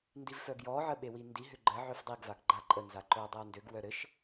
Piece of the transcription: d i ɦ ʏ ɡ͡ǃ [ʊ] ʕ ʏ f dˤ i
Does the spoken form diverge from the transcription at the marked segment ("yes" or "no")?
yes